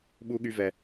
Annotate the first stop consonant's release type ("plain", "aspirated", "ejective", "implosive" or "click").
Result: implosive